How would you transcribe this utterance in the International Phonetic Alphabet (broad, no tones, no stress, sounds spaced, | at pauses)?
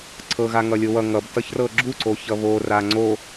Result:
ǀʰ ɤ ɣ a ŋ ʌ lʲ o w ʌ ŋ ʌ b t ʌ ç r ɤ ɡ͡ǁ u ǀ o ç ʌ β o r a ŋ͡ǀ o